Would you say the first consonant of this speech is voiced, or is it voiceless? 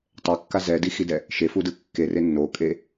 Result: voiceless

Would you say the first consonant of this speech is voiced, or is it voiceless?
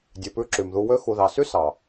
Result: voiced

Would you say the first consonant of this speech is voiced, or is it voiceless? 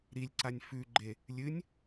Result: voiced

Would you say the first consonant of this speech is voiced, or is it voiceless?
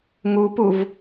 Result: voiced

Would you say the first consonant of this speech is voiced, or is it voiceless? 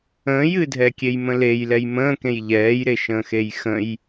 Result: voiced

